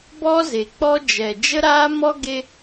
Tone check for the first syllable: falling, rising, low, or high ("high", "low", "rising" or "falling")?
high